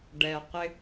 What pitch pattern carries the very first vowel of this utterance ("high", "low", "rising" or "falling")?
low